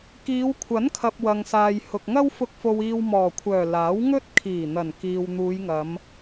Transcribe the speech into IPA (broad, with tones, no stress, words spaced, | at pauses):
kiː˨˧wkʷʰɐ˨˥nkʰɐ˨p̚ wɐ˨ŋsaː˨j hʊ˨k̚ŋɐ˥wfʊ˧k̚ fo˧wiː˧wmɔː˨˩kʷʰœː˨˩ laː˨˥wŋɵ˥t̚kʰiː˨˩ n̪ɐ˨˩nkiː˨w n̪uː˨˧jŋɐ˨˧m